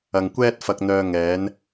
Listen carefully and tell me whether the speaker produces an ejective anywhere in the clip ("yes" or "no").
no